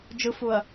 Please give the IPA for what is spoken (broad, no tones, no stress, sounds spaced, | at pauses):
d͡ʒ ɯ f u ɐ̯